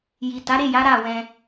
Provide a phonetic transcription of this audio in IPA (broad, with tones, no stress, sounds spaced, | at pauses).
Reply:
j i˨ t a˨˦ ɾ e˦˨ j a˨˦ ɾ a˦˨ w ɛ̃˧